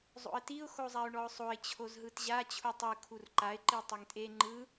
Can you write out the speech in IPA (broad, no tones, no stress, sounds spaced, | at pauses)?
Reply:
zˤ o̰ ə̯ t i ʊ̯ x o zˤ a ʊ̯ ɳ ɔ ʊ̯ sˤ o ɪ̯ t͡ɕʰ o z ɦ ɯ t ʑ a t͡ɕʰ u tˤ ɯ kʰ u r ǃ a ɪ̯ ǃ i tˤ e ŋ tʼ e ŋ͡ǃ ɯ